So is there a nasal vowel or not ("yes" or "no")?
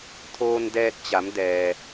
no